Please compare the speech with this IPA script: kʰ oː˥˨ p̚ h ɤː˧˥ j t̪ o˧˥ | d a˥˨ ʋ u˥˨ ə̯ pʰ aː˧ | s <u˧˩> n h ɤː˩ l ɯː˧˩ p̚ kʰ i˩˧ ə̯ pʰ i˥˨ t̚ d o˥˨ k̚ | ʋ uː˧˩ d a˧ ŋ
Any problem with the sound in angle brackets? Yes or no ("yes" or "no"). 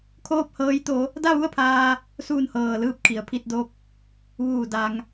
yes